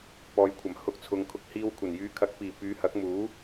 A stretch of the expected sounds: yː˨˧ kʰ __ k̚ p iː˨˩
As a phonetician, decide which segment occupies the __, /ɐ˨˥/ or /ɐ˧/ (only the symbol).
ɐ˨˥